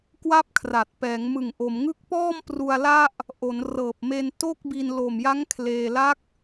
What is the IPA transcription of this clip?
k w a˥˩ p̚ kʰ r a˨˩ t̚ p ɛː˩˦ ŋ m ɯ˨˩ ŋ ʔ o˩˦ m ŋ ɯ˥˩ k̚ p ɔː˥˩ m p r u˧ a̯ l a˥˩ ʔ | ʔ o˩˦ n r ɤː˨˩ p̚ m e˧ n t o˥˩ k̚ b i˧ n l o˨˩ m j a˦˥ ŋ kʰ l eː˧ l a˦˥ k̚

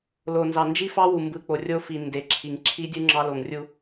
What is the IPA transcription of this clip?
l o˨ n z ɑ˨ n d͡ʒ i˦ f ɑ˦ w u˨ m b ɯ˨ k͡p o˨ rʲ o˦ f i˨ n d e˨ ǁʰ i˨ ŋ ǁʰ i˦ dʲ u˦ ŋ͡ǁ ɑ˦ l o˨ ŋ rʲ u˦

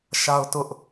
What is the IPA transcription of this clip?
ʃ a˦ ʊ̯ t ʊ˦ ʔ

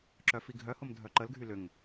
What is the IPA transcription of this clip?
ǁ œ f i ɡʱ œ h ʊ m dʱ œ ǃ ə l ɡʱ y l ʏ ŋ

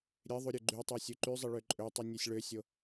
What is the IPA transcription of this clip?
ɾʲ e ðˤ u ɾʲ ø ɡ͡ǃ y tˤ y sʲ u ǃ y zˤ i ɭ ø ǃʼ ø tˤ u nʲ e sʲ ɭ ø sʲ o

